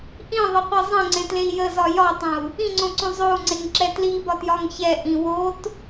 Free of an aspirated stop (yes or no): yes